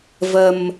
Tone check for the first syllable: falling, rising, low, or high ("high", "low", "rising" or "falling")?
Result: low